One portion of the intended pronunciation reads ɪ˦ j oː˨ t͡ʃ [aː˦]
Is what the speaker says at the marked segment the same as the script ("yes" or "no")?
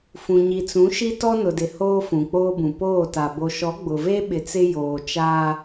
yes